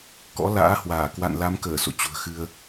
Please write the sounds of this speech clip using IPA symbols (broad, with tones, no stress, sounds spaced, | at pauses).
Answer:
k ɔ̰˧˥ l a̰ː˧˥ h w aː˧˩ k w a̰˧˨ n l a˨˦ m k əː˧˩ s o̰˧˨ t͡ɕ ṳ˨˩ ə̯ x ɨ˧ ə̯